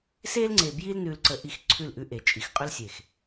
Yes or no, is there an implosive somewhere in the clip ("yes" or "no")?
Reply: no